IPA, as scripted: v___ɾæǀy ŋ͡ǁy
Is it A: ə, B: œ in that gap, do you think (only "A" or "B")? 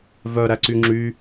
B